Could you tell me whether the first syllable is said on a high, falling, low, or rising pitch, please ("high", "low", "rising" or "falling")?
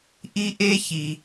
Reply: high